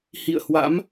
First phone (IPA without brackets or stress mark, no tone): h